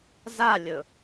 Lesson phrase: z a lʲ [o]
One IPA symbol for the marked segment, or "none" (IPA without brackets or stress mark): ɵ